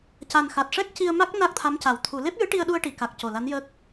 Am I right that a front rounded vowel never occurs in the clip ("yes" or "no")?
yes